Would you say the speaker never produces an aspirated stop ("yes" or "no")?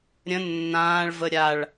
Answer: yes